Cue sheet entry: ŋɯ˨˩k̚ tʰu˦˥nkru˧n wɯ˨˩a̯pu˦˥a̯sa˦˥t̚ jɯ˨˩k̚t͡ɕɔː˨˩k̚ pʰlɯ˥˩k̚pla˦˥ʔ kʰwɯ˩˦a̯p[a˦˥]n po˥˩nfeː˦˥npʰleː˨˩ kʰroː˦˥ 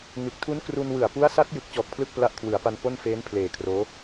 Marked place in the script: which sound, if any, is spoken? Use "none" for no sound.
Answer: a˧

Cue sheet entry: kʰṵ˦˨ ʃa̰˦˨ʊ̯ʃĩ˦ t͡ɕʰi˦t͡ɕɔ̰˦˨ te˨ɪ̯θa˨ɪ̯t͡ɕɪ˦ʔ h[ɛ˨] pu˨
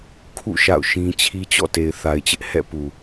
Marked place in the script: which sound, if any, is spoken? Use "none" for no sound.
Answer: ɛ̰˦˨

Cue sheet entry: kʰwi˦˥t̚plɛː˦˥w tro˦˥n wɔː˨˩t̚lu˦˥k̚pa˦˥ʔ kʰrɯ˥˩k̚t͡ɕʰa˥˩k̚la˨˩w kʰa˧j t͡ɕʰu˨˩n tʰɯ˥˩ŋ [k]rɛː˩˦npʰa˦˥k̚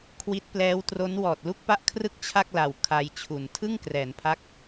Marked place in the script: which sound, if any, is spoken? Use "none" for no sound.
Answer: k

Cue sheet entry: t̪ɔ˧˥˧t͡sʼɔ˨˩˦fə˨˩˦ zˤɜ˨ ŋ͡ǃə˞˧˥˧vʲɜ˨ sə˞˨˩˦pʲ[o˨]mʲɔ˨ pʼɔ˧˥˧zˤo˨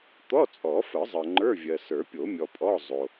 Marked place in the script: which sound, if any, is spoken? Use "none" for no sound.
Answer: o˨˩˦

